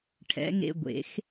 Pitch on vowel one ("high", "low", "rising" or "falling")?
rising